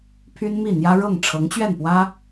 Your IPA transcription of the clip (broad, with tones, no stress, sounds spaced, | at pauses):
pʰ y˥ n m i˥˩ n̪ j ä˥ ɻ ɤ˥˩ ŋ ʈ͡ʂʰ ɤ˧˥ ŋ t͡ɕ ɥ ɛ˥˩ n p w ä˥